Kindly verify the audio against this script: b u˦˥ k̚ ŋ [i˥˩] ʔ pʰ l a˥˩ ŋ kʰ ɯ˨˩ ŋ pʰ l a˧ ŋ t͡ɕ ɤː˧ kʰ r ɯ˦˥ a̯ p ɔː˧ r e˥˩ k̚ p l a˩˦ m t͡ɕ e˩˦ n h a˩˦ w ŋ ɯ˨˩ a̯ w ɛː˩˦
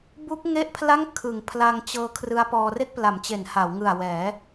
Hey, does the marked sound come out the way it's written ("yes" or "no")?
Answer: no